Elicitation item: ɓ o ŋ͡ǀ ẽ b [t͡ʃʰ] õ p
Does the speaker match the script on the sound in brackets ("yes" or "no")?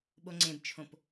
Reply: yes